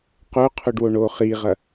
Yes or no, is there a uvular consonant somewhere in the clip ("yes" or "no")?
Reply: yes